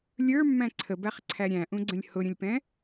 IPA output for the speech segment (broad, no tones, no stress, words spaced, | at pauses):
lʲə˞mːæ̃ ǀʰəbæχ ǀʰæɾʲæ̃ʔũɡ͡ǀə̃lʲ hʊɾʲə̃lʲpɛ̃